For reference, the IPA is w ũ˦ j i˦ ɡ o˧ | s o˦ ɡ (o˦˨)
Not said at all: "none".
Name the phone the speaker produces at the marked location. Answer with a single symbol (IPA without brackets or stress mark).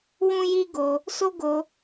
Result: o˧